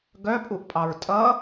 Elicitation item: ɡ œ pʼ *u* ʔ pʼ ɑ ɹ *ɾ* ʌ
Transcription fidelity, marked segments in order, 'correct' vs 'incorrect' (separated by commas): correct, incorrect